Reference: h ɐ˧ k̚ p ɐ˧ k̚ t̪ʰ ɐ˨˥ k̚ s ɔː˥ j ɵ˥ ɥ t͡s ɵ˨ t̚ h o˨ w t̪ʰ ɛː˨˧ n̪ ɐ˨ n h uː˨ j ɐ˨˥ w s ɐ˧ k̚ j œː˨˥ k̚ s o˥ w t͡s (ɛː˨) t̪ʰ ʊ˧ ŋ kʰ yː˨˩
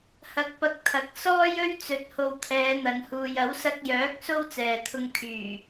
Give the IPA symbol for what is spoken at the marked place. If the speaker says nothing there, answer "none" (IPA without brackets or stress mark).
ɛː˨